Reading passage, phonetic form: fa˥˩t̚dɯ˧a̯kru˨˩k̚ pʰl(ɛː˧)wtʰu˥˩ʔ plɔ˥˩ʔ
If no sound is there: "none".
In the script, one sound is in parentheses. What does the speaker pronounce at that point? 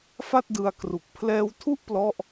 ɛː˧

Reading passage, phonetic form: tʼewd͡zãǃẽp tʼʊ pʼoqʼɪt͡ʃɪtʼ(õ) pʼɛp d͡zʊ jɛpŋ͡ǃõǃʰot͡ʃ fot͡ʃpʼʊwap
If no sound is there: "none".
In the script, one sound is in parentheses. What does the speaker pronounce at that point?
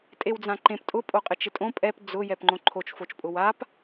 õ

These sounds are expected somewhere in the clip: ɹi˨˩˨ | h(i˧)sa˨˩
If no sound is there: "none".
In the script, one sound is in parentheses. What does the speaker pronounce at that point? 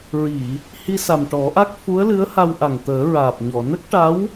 i˧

